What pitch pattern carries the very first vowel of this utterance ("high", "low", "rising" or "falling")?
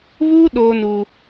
high